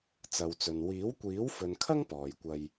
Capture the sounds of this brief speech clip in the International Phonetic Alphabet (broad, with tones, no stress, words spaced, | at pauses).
t͡sɐ˨wt͡sɵ˨n wiː˨˥wkʷiː˨˥wfɵ˨nkʰɐ˥ŋ pɔː˨jkʷɐ˧j